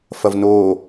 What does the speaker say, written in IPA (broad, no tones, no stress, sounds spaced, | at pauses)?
f ɐ v n o